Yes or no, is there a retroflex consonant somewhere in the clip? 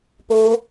no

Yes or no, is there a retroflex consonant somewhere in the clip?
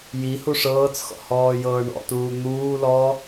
yes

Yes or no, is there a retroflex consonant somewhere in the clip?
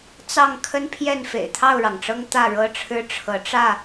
yes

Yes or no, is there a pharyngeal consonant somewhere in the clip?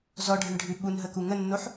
yes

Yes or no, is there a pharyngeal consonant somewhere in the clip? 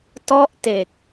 no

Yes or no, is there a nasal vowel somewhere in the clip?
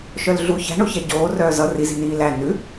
no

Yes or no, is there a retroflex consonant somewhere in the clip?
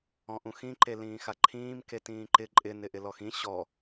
no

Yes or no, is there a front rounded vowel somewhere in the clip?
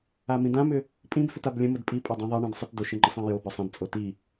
yes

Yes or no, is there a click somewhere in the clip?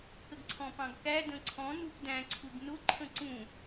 yes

